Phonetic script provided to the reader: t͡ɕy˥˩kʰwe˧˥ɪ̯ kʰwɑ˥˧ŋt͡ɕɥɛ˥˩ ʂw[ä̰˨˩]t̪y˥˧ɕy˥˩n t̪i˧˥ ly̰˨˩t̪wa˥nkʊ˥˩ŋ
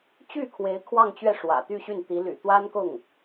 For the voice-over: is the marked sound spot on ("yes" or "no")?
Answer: yes